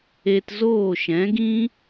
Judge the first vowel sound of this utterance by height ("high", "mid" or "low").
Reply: mid